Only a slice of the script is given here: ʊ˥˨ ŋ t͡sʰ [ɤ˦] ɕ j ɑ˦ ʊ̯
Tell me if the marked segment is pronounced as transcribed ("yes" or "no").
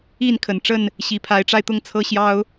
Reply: yes